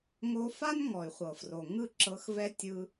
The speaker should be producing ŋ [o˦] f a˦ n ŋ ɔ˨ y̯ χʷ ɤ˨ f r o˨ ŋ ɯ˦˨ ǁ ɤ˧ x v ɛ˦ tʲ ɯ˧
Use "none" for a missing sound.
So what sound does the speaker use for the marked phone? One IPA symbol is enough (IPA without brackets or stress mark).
o˧